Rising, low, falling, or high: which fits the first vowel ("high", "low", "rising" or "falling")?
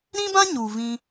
high